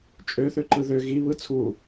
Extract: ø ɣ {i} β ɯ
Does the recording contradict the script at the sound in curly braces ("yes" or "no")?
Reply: no